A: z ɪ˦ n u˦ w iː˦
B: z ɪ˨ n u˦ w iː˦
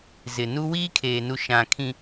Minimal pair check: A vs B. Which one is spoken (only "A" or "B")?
B